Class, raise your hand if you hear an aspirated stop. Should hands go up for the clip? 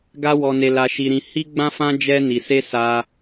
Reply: no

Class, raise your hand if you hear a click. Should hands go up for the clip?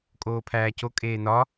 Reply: no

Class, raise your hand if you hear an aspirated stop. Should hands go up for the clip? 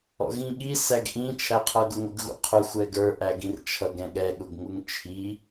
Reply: yes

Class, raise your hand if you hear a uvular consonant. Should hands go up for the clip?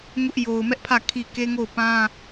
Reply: no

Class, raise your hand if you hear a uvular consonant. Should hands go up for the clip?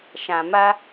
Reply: no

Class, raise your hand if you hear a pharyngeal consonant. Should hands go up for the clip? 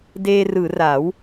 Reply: no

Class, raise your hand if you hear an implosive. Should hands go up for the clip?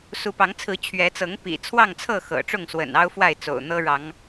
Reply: no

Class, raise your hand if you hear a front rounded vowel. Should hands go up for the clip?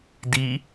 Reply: no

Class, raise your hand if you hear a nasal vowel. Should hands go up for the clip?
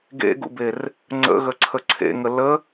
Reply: no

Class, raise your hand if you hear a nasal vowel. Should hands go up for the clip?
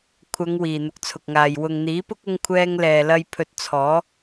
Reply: no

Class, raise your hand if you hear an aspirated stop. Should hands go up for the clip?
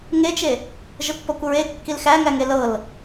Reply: no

